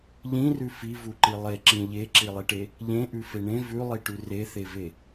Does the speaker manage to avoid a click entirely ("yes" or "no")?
no